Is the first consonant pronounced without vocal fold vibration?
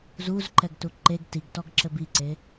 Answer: no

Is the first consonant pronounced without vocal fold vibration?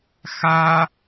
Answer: yes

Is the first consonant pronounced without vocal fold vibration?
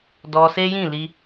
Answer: no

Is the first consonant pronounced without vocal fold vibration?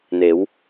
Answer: no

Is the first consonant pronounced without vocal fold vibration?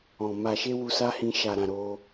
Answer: no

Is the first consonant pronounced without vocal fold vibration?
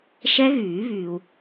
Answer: yes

